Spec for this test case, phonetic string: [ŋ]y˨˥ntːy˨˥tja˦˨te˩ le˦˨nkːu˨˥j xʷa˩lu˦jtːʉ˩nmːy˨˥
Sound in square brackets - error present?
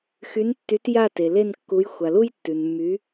yes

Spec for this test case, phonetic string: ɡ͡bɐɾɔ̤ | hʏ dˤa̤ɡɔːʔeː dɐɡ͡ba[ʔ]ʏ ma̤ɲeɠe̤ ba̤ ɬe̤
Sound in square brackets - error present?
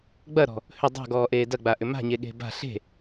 no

